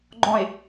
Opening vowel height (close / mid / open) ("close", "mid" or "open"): mid